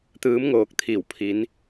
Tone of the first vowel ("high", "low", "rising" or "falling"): rising